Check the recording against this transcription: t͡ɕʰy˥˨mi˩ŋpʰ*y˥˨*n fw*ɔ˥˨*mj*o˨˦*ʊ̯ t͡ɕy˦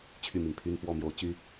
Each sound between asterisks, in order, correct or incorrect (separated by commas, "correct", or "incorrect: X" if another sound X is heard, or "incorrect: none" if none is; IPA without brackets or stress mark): incorrect: y˦, correct, correct